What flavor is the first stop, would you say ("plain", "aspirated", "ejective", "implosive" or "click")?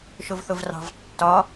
plain